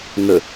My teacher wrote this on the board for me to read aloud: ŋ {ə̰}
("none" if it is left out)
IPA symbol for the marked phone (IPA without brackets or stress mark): ə